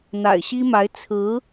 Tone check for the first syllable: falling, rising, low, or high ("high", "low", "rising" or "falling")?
low